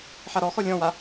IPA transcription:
ħ a ɾ ɔ x ɔ lʲ ɔ̃ w a

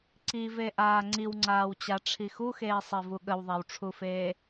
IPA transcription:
ǀ i v e ʔ aː ŋ͡ǀ i w ŋ͡ǀ aː w t͡ɕ a ʈ͡ʂʰ i x u x eː sˤ e v u ɠ ə w ðˤ a w ʈ͡ʂʰ u f eː

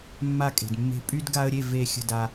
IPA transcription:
mː a˥˨ kʼ e̤˨ d mː e̤˦ pʼ y˦ d ɡ a˦ ə̯ ɾʲ e˥˨ v e˥˨ xʲ ə̤˥˨ d a˦

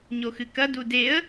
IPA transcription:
ɲ o x ɨ k ɐ d u d e ə̯

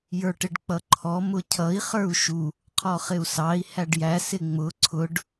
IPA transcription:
j ə˞ ʈ ɪ ɖ k͡p ʌ ǃʰ ɔ m ʊ cʰ ʌ i̯ χ ə˞ u̯ ʃ u | qʰ ɔ χ ɪ u̯ s ɑ i̯ h æ ɖ j æ s ɪ ŋ͡m ʊ ǀʰ ʊ ɖ

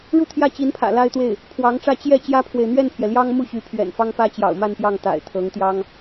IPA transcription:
ɻ u˥˧ t̪ʰ j ä˥˩ t͡ɕ i˧˥ n pʰ ä̰˨˩ l a˥ ɪ̯ t̪ w e˥˩ ɪ̯ | pʰ w ɑ˧˥ ŋ ʈ͡ʂ ä˥˧ t͡ɕ j ɛ˥˩ t͡ɕ j ä˥ pʰ w e˨ ɪ̯ n̪ ɥ ɛ˥˩ n pʰ j ɛ˩ l j ɑ˥ ŋ m u˥˩ ɕ y˧˥ pʰ ɥ ɛ̰˨˩ n f ɑ˥ ŋ p ä˥ t͡ɕ j ɑ̰˨˩ ʊ̯ m a˥˧ n p j ɑ˥˩ ŋ t̪ a̰˨˩ ɪ̯ t̪ʰ ɤ˧˥ ŋ t̪ j ɑ˥ ŋ

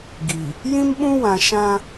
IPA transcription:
ɡ i˨ | j ĩ˦ m ɓ ũ˦ w ã˨ ʃ ã˦

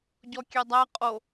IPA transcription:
ɟ ɔ kʲ ɛ dˤ æ qʼ o

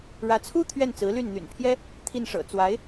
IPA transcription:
ɻ ä˧˥ t͡sʰ u˥ t̪ʰ ɥ ɛ˥˩ n t͡s ɹ̩˧˥ l y˥˩ n n̪ y̰˨˩ n pʰ j ɛ˥ | t̪ʰ i˥˩ n ʂ ɤ̰˨˩ t͡s w a˧˥ ɪ̯

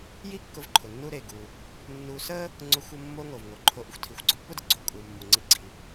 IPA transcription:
j i˥ kː ʊ˧ v ǃʰ ʊ˩ nː u˧ ɾ e˩ ɡ u˩ | nː u˧ s ə˥ | ŋ͡ǀ ʊ˧ xʷ ə˧ mː o˧ ŋ o˩ v ŋ o˩ ǃʰ o˧ ʔ ə˧ xʷ tʰ i˩ xʷ ɡ͡ǀ ʊ˥ pː ʊ˥ d ə˩ ɡ͡ǀ o˥ kʼ u˩ mː u˩ ŋ͡ǀ i˧ ɡ͡ǀ i˩

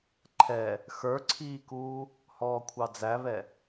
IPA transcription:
ǃʰ ɛ | x ə˞ ǀʰ iː k uː | h ɔː kʷʰ ɑ d͡z æ β ɛ

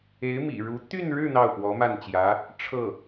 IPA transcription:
e˧˥ ɪ̯ m ḭ˨˩ ɻ u˧˥ t̪ y˥˧ n ɻ ɻ̩˥˧ n̪ ɑ˥˩ ʊ̯ p w ɔ˧˥ m a˥˩ n t͡ɕ j ä˧˥ | ʈ͡ʂʰ ɤ˥˩

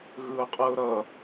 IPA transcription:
ɣ ɯ ʊ̯ qʼ ɯ ʊ̯ ɾ ʌ

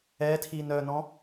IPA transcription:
ɛ tʰ i n œ n ɔ̃

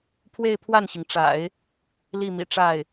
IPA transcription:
pʰ w e˥˧ ɪ̯ pʰ w a˥˩ n ɕ i˩ ŋ ʈ͡ʂ a̰˨˩˦ ɪ̯ | l i˥˩ m ḭ˨˩ ʈ͡ʂ a˥˩ ɪ̯

